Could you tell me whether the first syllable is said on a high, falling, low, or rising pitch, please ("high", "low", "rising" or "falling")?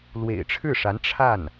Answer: low